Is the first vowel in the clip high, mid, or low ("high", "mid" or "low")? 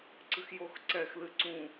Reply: high